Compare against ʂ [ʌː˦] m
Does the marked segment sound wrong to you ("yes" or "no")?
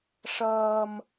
no